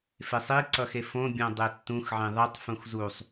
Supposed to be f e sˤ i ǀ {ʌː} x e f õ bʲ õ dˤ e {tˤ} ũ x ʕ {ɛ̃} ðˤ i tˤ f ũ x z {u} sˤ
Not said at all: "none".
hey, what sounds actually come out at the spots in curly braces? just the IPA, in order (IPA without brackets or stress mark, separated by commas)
ʌ, tː, ẽ, u